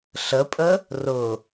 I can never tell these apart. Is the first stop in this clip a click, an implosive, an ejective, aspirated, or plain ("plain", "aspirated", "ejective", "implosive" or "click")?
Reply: ejective